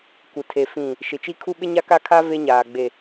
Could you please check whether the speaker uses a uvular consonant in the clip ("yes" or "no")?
no